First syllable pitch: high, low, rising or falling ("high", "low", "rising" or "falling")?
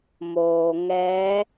low